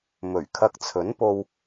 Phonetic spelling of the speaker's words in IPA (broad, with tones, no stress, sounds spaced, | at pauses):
m ɵ˨˩ ɥ kʰ ɐ˧ k̚ t͡sʰ ɵ˨˥ n p o˧ w